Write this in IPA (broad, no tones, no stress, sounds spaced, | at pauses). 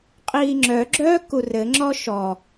qʼ iː ŋ͡ǁ œ ɡ͡ǁ œː k u r ɘ ŋ͡ǁ ɔ ʃ ɔ